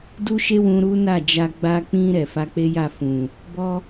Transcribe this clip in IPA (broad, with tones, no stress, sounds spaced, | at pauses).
d u˦ ʃ e˦ w ũ˧ ɾ u˦ n a˦˨ d͡ʒ a˧ ɡ͡b a˧ k͡p ĩ˧ ɾ ɛ˨ f a˧ k͡p e˦ j a˦˨ f ũ˨ | b ɔ˦